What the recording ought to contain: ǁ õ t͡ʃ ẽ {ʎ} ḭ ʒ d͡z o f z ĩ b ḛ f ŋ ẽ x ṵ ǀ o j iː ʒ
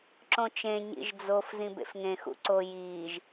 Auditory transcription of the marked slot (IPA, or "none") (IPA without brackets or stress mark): ɲ